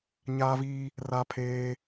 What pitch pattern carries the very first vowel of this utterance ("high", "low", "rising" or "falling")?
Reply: high